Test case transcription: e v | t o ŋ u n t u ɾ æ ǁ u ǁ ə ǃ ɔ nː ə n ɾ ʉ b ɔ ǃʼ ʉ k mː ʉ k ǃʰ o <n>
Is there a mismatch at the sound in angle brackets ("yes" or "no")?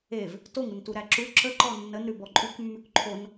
no